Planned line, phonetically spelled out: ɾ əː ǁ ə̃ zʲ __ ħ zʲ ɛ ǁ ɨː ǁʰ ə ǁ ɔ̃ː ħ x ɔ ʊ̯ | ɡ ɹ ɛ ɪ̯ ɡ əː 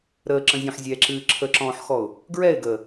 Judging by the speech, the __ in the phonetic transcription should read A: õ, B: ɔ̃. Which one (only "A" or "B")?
B